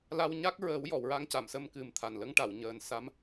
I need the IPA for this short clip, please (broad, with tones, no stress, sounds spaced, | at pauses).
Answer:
l a˧ w ɲ a˦˥ k̚ ɹ əː˨˩˦ w j ɔ˨˩˨ w ɹ a˧ ŋ c a˨˩˨ m s ə˧ m k ɨ˨˩ m t̪ʰ a˨˩ n l ə˧˥ ŋ ʈ a˨˩˨ w ɲ əː˨˩ n s a˧˥ m